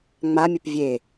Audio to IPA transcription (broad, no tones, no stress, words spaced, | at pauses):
ŋ͡mamʲəp vʲe